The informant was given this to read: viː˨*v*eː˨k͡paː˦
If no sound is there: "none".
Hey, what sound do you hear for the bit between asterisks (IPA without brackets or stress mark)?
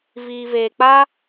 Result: v